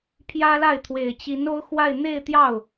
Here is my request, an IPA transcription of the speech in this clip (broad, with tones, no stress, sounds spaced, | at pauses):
pʰ j ä˥ l a˥˩ ɪ̯ t̪ʰ w e˨˩ ɪ̯ t͡ɕ i˧˥ n o˥ ʊ̯ x w a˥˧ ɪ̯ n̪ e˥˧ ɪ̯ t̪ j ɑ˥˩ ʊ̯